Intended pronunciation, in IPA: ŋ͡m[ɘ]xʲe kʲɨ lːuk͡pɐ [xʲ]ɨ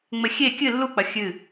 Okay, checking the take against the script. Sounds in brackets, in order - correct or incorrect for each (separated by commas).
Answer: correct, correct